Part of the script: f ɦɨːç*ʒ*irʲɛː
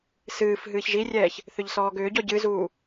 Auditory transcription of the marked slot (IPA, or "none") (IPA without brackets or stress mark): ʒ